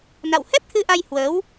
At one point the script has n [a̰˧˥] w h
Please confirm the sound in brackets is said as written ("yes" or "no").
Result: no